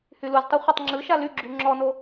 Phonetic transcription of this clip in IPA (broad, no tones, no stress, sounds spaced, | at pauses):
h y l u z tˤ u χʷ ə tˤ ŋ͡ǁ ɯ ʃ a l y ɡ͡ǁ y ŋ͡ǁ ɔ n o